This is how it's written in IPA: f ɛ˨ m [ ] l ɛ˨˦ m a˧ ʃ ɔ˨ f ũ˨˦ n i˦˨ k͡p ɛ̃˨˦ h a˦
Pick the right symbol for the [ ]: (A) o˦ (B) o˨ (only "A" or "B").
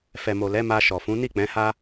B